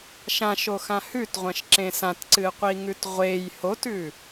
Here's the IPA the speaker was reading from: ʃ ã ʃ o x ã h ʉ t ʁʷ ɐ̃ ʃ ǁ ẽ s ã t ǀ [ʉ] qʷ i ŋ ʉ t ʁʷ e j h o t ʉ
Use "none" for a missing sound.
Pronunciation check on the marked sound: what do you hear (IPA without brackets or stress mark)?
ɨ